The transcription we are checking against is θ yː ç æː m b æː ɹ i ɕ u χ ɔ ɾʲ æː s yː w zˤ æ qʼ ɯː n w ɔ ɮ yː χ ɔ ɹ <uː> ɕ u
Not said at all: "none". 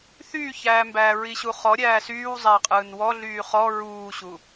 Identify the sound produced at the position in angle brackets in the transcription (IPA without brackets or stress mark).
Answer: uː